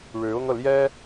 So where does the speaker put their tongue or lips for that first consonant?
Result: retroflex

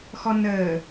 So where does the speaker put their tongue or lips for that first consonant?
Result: velum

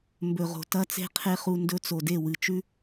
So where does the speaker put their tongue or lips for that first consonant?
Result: lips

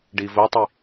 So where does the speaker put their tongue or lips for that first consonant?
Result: retroflex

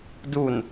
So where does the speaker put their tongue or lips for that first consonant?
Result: tongue tip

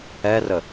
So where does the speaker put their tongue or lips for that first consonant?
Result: tongue tip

